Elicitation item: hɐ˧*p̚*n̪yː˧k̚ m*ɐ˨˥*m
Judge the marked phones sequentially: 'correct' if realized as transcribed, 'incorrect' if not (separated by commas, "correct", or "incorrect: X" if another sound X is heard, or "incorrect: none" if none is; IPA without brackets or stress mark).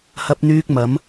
correct, correct